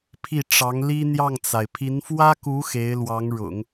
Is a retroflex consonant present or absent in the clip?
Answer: present